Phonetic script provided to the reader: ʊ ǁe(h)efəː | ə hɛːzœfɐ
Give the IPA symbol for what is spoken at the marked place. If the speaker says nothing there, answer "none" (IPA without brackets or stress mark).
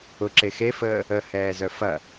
x